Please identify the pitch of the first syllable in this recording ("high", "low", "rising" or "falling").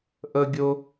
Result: high